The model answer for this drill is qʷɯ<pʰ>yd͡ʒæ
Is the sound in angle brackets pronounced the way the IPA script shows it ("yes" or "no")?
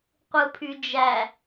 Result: yes